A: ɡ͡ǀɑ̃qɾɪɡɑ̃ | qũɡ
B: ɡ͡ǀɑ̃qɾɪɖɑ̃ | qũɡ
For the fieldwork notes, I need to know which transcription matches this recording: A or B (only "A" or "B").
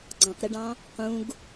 B